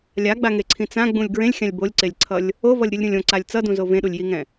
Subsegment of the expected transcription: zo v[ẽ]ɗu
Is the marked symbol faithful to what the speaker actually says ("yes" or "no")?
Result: yes